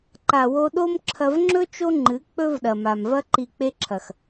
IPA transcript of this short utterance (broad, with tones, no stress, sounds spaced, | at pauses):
ǃ a˨ w o˧ ɗ o˦ m ǁʰ ɐ˧ v ŋ͡ǁ ɵ˦ t͡ʃ o˦ ŋ͡ǃ ɨ˨˦ k͡p ɵ˦ v ɗ ɐ˨ m a˨ m v ɐ˦ ǃ i˨ k͡p e˧ ǁʰ ɐ˨ x